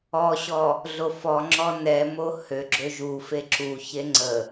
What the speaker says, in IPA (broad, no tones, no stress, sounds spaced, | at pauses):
ɔ ɕ ɔ | ɮ o f ɔ ŋ͡ǁ ɔ n ɛ m o h ø ɡ͡ǁ ø ʒ u f e ǁ u ç e ŋ͡ǀ ə